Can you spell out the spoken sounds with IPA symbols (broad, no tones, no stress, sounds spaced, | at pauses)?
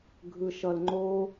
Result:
ɡʱ ɯ ʃ ʌ l ŋ͡ǃ o